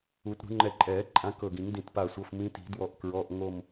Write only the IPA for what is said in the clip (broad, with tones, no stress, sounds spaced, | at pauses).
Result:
u˨˩˦ t ɾ ṳ˨˩˦ ŋ͡ǃ ɛ˧˩ ǃʼ ɛː˨˩˦ ǃʼ ã˨˦ k ɤ˧˩ ɡ ĩ˨˩˦ ŋ d ĩ˧˩ t p a˧˩ sʷ ɤ˩˧˩ f m ĩ˨˦ t i̤˨˩˦ d w ɔ˧˩ ʔ k ɹ ɔ˩˧˩ ʔ ŋ o˧˩ m